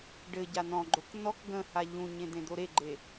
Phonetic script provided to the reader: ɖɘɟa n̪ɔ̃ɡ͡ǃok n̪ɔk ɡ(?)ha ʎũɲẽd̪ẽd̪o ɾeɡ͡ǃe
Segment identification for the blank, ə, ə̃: ə̃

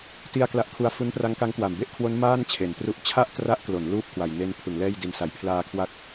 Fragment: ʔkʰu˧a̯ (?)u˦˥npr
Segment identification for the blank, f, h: f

